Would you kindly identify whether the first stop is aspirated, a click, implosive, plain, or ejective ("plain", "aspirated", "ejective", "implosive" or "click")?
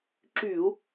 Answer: click